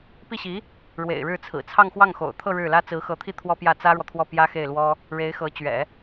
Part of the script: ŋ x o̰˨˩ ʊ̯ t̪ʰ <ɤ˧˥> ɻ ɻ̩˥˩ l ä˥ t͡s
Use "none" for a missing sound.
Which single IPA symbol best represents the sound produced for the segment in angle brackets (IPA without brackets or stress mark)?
ɤ˥˧